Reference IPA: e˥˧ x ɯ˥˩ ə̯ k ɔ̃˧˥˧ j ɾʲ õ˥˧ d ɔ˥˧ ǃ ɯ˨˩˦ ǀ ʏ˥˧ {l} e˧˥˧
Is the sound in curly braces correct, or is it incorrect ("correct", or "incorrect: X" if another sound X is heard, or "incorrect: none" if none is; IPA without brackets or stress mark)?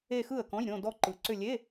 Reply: incorrect: lʲ